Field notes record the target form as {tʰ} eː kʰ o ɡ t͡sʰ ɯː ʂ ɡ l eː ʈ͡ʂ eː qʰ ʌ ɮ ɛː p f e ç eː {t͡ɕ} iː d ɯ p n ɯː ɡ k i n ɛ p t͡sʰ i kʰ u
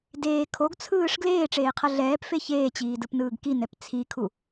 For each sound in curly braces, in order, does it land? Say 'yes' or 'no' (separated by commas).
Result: no, yes